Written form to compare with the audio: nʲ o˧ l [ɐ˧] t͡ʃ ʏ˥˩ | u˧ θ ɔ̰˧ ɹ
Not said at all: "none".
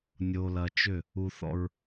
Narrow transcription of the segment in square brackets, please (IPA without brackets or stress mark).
ɐ˧